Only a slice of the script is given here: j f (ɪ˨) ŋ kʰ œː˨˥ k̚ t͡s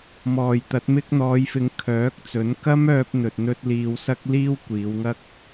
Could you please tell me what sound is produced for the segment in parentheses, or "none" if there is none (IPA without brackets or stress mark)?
ɪ˨